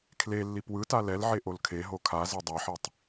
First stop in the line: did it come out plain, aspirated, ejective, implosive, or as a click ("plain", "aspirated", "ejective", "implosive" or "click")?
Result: aspirated